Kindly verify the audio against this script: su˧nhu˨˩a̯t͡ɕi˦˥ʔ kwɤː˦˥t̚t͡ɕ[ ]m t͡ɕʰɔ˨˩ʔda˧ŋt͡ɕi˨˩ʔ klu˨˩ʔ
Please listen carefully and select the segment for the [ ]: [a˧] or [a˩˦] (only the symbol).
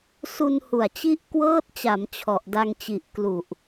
a˩˦